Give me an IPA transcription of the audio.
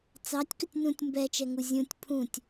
t͡s ɑ tʲ k ɵ tʲ n ũ tʲ m b ɛ t͡ʃ ɛ ŋ u zʲ ũ tʲ pʰ ũ tʲ

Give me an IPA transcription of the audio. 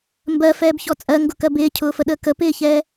m b ɜ f ɛː b ç ɔ t͡sʼ ɜ ŋ ɡ ʊ k ɜ b ɪː cʰ ʊː f ə ɗ əː k ə p ɪː ç ɛː

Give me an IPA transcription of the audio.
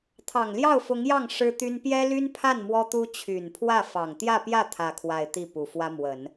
t̪ʰ ɑ˨˩ ŋ l j ɑ˥˩ ʊ̯ f ʊ˧˥ ŋ j ɑ˥˩ ŋ ʂ ɻ̩˥ t̪ y˥ n p j ɛ˥ l y˥ n pʰ a˥˩ n m w ɔ˥ t̪ u˥ t͡ɕʰ y˨˩ n pʰ w ä˥˩ f ɑ˨˩ ŋ t̪ j ä˥˧ p j ä˥˧ t̪ʰ ä˥˧ kʰ w a˥˧ ɪ̯ t̪ i˥˩ p u˨˩ f w ä˥ m w ə˨˩˦ n

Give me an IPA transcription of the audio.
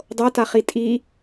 dˤ ɤ t a χ i tʼ i

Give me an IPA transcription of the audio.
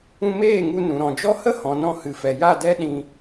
ũ˧ m eː˦˨ ŋ u˧ n ũ˨ ɾ ɔ̃˨ d͡ʒ ɔ˦ h ə˦ h ɔ̃˨ n ɔ̃˧ h ɨ˨ f ɛ˨ j a˦˨ d ɛ˦ ɗ ĩ˧

